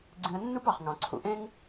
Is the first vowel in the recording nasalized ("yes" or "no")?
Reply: yes